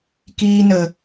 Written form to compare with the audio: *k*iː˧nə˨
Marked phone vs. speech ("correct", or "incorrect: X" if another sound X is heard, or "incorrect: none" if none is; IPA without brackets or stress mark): correct